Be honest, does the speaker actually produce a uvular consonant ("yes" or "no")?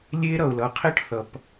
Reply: yes